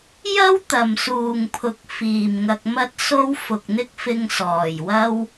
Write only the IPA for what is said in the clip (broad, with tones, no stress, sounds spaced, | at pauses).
j ɐ˧ w t̪ ɐ˨˩ m s uː˨˩ ŋ pʰ ʊ˨ k̚ f iː˨˩ m ŋ ɐ˧ k̚ m ɐ˥ t̚ s o˥ w f ʊ˨ k̚ n̪ ɪ˥ k̚ f ɪ˧ ŋ s ɔː˨˩ j w ɐ˥ w